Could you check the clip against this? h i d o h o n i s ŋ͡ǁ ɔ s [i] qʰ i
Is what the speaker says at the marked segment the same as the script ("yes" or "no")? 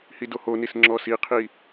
yes